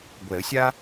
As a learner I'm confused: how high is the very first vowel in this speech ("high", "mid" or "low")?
mid